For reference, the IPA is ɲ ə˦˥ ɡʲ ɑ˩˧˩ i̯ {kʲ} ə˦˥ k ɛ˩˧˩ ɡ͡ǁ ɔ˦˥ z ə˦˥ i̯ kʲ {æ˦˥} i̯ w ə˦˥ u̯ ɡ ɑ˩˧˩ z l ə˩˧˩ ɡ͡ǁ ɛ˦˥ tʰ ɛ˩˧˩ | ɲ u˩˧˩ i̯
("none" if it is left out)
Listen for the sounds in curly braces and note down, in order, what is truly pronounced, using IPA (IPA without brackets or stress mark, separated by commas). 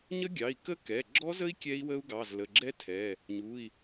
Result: k, ɛ˦˥